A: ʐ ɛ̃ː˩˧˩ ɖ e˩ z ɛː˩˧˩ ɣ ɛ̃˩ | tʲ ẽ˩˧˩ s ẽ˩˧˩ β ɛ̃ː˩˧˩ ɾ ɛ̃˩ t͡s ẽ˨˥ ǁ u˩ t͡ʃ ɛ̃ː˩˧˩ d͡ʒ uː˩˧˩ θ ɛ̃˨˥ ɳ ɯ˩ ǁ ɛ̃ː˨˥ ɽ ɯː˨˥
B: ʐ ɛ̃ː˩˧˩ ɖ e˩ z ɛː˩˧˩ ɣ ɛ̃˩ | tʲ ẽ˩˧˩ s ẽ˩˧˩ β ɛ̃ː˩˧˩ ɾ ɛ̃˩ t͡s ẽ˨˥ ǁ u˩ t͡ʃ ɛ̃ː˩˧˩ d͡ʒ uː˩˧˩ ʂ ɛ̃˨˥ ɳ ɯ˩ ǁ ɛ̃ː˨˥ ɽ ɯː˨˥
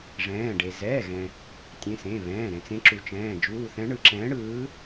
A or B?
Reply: A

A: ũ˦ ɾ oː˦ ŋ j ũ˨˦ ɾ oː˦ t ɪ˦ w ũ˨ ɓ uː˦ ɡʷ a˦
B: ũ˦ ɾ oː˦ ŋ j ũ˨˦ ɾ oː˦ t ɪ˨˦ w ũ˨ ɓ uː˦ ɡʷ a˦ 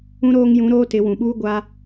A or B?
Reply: B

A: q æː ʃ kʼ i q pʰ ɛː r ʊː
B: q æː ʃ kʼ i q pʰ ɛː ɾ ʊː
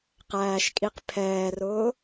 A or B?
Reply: A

